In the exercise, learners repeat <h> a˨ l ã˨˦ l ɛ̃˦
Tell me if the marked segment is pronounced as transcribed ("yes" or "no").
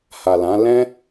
yes